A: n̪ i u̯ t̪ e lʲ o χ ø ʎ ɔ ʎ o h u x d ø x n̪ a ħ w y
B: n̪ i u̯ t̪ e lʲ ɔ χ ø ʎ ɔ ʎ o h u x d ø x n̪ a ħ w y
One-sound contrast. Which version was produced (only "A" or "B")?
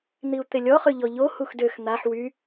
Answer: B